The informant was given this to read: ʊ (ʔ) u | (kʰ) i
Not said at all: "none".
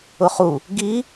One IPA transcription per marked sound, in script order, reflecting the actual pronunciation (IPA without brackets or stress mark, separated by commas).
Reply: χ, ɡ